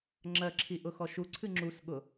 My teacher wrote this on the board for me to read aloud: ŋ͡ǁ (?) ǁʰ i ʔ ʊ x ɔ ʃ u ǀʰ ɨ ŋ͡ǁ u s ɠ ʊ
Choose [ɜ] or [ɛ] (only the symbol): ɜ